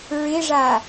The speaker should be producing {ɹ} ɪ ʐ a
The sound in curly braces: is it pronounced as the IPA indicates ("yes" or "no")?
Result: yes